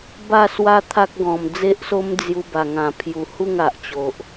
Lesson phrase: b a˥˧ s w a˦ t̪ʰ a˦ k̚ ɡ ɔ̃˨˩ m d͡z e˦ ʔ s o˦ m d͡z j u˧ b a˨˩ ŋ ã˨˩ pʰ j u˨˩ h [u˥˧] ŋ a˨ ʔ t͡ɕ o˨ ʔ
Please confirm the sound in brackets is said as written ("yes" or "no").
yes